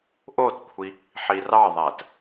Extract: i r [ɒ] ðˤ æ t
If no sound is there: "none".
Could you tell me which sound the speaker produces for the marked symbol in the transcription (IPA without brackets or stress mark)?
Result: ɑ